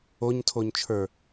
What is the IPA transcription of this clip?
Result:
o ɲ tʰ o ɲ t͡ʃʰ ə˞

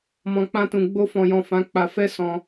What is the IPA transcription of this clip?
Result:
m ɔ̃˨ k͡p ã˧ t ũ˨ ɡ͡b o˧ f ɔ̃˨ j ɔ̃˨ f ã˨˦ k͡p a˧ f ɛ˦ s ɔ̃˧

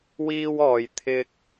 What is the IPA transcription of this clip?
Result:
w iː˥ w ɔː˨˧ j t̪ʰ ɪ˧ k̚

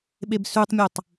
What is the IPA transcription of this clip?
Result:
ɓ e b s ʉ tˤ mʲ ʉ tˤ

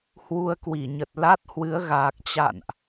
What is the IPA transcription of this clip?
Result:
h w u˧ ə̯ k w i˧˩ ɲ ə˨˩ t̚ l a˦˥ t̚ h w ɨ˨˦ ə̯ ɣ aː˨˩ k̚ t͡ɕ a̰˧˨ n ʔ

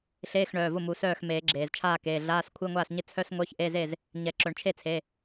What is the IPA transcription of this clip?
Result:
ɬ eː˧˥˧ x ɳ œː˩˧˩ v ʊ˥˩ m u˨˩˦ s œː˥˩ x m eː˨˩˦ ɡ͡ǁ eː˩ z t͡ʃʰ aː˥˩ k eː˩˧˩ ɮ aː˧˥˧ s kʷʰ ɪ˧˥˧ ŋʷ aː˥˩ s ɲ ɪ˥˩ t͡sʰ œ˧˥˧ s ŋʷ œ˧˥˧ ç ʔ e˧˥˧ z e˥˩ z | ɲ ɛ˨˩˦ ǁ œ˨˩˦ ɳ t͡ʃʰ e˥˩ t͡sʰ e˩˧˩

